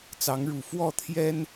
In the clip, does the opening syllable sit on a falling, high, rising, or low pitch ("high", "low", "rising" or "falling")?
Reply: rising